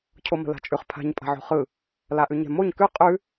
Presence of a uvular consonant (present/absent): present